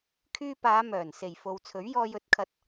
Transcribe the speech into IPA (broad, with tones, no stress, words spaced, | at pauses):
kʰyː˧paː˨˧mœː˨˩n se˨˩jfo˨wt͡sʰɵ˨˥ɥ jɔː˧jɵ˨˥t̚kʰɐ˧t̚